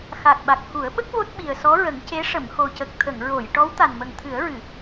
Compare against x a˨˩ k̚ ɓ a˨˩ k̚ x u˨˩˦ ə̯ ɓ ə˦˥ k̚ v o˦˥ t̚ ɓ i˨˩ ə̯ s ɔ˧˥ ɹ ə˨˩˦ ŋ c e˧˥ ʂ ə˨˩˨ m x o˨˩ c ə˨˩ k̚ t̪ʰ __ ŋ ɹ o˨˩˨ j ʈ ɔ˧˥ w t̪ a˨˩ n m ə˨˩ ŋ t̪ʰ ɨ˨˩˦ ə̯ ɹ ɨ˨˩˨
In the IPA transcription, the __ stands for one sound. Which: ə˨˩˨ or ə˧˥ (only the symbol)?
ə˨˩˨